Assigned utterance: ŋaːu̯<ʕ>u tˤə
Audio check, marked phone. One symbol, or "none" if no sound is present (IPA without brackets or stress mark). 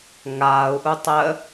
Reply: ʔ